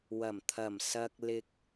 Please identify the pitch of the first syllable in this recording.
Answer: low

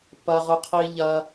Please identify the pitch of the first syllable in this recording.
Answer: high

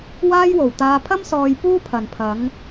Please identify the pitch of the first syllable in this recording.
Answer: high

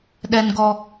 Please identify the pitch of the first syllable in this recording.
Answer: high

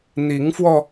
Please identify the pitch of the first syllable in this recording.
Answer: rising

